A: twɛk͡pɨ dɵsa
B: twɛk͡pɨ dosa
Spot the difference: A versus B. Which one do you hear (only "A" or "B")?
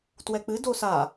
B